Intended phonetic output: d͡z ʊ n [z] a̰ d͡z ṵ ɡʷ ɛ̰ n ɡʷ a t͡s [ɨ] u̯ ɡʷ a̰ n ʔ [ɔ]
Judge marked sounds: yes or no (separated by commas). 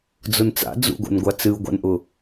no, yes, no